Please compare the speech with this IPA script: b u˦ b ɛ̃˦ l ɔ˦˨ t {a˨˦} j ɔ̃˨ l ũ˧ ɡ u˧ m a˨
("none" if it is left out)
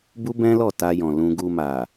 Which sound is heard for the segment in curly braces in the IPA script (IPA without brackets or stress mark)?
a˧